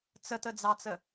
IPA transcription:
t͡s ə t ə d͡z ɑ t͡s ə

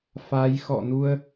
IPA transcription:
f a˨˦ j x ɔ̰˧˨ n u˧ ə̯

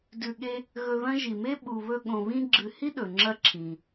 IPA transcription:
d ʉ˨ ɠ e˦ | ɣ ɵ˨ ð ɐ̃˦ ʒ i˩ m e˥ ɓ u˨ β ɵ˦ ɠ õ˨ β ĩ˦ ɡ͡ǁ ɨ˨ h i˥ ɗ ɵ˩ ŋ͡ǁ ɐ˦ ǁʰ ĩ˩

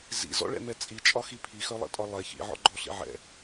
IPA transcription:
z ḭ z ɔ̰ ɭ ɛ̰ m ɛ t͡sʼ i t͡ʃʼ ɒ x i pʰ i x œ lˠ ɛ̰ tʼ ɒ lˠ ɛ ç ḭ ʕ ɔ̰ ɡ͡ǃ ɔ ɬ ḭ ʕ ɛ̰

